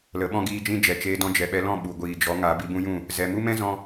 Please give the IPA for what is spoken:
l ə˨˦ ɓ ɔ̃˦ ɡ iː˦ d͡ʒ ĩ˦ d͡ʒ ɛ˨ t͡ʃ eː˧ d ɔ̃˧ d͡ʒ ɛ˨ ɓ ɛ˧ l ɔ̃˦˨ ɓ u˨ ɡʷ iː˨ d͡ʒ ɔ˨˦ ŋ a˨˦ b i˧ b ũ˦ j ũ˦˨ | z ɛ˧ m u˦ m ɛ̃˦ z ɔ̃˦

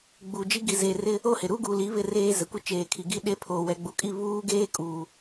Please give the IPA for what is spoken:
ɡ͡b u˨ d͡ʒ i˦ ɡ i˨ z e˨ r ɪ˦ | o˦˨ h ɪ˨ ɾ u˦ ɡ uː˨ l i˨˦ β ɪ˦ r eː˦ z ɛ˨ kʷ ɪ˦ t͡ʃ eː˨ kʰ i˨ ɡ i˦ ɗ e˦ pʰ oː˨ w ɛ˨ ɡ͡b u˨ kʼ i˦˨ β uː˦ ɡ eː˦ kʼ uː˨

